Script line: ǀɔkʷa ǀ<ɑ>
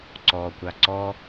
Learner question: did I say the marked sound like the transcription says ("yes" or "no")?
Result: no